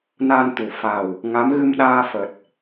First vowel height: low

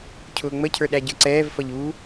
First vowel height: high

